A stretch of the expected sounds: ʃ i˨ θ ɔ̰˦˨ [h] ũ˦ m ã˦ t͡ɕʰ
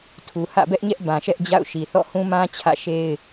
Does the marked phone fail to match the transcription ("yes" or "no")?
no